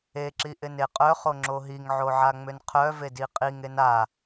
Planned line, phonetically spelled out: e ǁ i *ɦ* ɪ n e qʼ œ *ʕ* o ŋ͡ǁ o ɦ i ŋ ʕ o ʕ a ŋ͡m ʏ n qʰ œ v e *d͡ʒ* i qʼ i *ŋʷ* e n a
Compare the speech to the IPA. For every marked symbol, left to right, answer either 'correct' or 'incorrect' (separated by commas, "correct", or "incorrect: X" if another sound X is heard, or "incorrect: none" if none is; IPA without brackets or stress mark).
incorrect: ʔ, incorrect: χ, incorrect: d, incorrect: ŋ